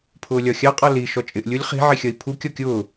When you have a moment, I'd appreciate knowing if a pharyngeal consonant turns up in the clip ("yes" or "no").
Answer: yes